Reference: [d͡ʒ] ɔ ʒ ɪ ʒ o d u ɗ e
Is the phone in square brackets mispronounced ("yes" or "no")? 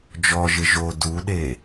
no